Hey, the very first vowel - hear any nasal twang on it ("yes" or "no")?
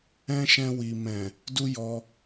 yes